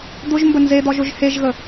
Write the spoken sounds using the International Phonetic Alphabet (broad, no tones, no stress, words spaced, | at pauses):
d̪ʊʒmbə nzed̪ɒʒ ʊʒheʒɣə